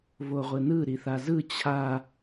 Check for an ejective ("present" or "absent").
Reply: absent